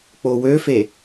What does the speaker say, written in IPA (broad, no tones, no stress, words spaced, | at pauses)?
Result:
k͡powøfe